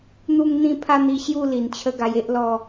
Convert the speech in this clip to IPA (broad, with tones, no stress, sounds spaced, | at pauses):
n̪ u˥˧ ŋ n̪ ĩ˥˧ pʰ a˥˧ n̪ i˧ ɕ j u˥˧ l i˨˩ n t͡ɕʰ ə˦ ɡ a˧ j e˦ ʔ l ɔ˥˧